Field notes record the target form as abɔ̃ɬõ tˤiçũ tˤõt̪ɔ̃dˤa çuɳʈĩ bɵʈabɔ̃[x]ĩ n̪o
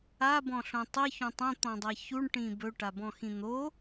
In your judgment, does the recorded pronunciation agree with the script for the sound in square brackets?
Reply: yes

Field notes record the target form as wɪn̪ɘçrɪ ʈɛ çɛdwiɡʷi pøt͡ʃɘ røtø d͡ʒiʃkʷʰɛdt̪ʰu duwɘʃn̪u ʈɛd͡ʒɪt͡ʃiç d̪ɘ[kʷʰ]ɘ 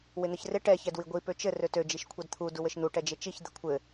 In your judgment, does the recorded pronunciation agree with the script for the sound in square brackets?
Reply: yes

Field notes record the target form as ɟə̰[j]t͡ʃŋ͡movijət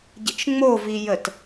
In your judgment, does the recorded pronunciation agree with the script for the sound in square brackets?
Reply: no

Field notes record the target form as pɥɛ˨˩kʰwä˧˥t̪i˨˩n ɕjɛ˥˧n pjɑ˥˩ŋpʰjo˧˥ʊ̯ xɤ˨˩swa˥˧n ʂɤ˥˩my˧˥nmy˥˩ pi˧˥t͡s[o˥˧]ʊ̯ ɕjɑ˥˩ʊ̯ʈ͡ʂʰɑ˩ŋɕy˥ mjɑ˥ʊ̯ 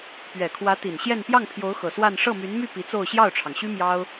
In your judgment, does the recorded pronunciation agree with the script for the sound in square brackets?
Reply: yes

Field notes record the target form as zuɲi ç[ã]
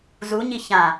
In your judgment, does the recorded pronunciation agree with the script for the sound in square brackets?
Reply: yes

